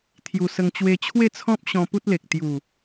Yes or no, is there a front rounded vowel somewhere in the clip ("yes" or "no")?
no